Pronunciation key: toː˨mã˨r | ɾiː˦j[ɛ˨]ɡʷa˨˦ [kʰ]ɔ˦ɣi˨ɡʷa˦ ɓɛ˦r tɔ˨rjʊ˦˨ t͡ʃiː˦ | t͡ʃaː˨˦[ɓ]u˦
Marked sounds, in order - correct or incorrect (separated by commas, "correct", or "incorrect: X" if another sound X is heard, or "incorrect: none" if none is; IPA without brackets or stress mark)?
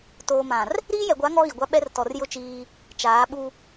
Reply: correct, incorrect: ŋ, correct